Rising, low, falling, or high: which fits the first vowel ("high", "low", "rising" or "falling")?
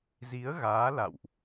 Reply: rising